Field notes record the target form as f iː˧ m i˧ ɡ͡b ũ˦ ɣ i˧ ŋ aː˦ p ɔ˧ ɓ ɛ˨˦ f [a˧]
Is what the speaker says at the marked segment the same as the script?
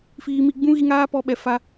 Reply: yes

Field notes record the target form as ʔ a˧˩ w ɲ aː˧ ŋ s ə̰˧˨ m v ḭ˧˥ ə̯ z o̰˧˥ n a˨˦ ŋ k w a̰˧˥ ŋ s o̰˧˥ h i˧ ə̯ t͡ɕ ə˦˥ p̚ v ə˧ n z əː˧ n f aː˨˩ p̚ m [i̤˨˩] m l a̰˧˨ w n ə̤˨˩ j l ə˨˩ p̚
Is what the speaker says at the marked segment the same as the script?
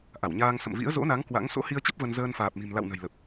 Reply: yes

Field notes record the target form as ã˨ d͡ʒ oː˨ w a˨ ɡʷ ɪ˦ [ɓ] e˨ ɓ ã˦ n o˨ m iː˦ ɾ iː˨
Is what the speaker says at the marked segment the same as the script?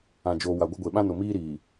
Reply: no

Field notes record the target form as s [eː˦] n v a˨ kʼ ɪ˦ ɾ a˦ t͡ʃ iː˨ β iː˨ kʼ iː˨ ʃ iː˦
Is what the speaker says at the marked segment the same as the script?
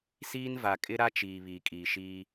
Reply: no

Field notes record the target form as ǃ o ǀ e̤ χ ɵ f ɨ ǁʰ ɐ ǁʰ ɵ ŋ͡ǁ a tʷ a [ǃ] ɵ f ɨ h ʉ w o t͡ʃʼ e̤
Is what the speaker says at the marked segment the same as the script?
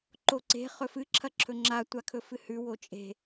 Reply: no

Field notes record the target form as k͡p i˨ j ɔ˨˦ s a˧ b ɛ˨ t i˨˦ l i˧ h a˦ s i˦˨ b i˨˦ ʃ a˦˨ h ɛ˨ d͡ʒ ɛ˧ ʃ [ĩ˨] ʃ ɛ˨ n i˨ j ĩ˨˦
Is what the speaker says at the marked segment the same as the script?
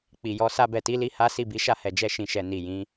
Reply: yes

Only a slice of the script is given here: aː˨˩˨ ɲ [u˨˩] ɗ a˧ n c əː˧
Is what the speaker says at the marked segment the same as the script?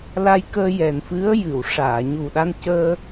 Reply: yes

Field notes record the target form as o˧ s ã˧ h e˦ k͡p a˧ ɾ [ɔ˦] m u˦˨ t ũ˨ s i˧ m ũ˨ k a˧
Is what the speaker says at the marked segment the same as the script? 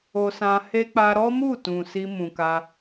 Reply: yes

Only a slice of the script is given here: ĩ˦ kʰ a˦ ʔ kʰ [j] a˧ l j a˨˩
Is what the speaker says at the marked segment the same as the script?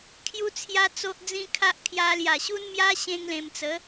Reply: yes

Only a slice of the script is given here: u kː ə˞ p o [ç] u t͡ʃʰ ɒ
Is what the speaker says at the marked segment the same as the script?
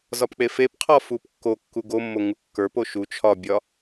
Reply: no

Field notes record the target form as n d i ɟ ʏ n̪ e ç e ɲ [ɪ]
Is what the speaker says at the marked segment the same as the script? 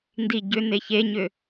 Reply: no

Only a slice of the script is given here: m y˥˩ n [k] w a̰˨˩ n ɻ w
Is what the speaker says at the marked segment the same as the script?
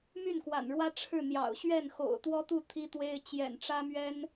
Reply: yes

